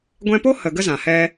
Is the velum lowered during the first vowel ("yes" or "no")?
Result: yes